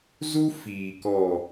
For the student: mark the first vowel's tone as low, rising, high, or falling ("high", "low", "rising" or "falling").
high